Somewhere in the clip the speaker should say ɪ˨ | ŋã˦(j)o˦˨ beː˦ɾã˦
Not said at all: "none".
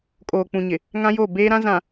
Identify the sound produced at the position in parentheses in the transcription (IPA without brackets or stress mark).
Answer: j